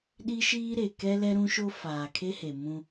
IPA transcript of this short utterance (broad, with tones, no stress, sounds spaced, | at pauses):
ɗ i˦ ʃ iː˦ ɾ e˨ k ɛ˦ l ɛ˦ ɾ ũ˦ ʃ o˦ f aː˨ kʰ e˦ h e˨ m ũ˦